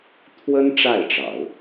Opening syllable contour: high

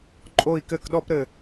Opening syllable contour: falling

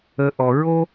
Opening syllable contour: low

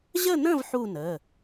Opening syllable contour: falling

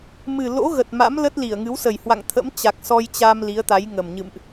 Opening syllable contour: low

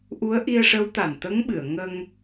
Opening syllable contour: rising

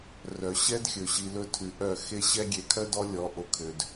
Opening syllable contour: low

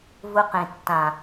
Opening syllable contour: high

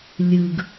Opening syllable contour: low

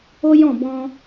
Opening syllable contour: high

